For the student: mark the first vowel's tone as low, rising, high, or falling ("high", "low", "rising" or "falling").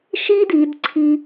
high